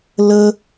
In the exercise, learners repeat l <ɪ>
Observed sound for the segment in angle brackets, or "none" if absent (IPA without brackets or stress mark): ə